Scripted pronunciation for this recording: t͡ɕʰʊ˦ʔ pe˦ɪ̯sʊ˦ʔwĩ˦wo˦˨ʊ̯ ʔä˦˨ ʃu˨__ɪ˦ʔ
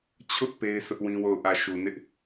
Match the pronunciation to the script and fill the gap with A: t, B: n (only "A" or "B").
B